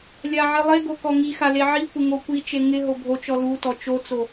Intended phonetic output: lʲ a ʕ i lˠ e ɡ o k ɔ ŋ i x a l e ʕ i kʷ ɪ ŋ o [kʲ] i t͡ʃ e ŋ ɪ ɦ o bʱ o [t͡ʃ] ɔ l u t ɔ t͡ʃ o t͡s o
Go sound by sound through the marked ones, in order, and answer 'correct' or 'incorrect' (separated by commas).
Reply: incorrect, correct